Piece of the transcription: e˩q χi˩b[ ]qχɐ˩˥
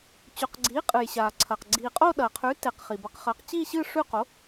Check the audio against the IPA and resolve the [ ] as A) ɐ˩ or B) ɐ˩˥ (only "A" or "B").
B